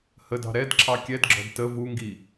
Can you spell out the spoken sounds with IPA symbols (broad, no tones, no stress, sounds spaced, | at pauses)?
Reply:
h ə d ɑ̤ ɾ ɛ d ǁʰ ɑ kʲ ɛ d ɡ͡ǁ ɔ̤ d t ə v u ŋ ɡ i